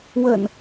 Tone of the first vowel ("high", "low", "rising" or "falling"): low